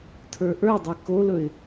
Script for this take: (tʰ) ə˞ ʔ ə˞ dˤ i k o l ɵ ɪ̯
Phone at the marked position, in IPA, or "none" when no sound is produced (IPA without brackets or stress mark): tʰ